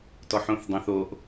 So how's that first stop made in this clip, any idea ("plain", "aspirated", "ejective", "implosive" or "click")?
plain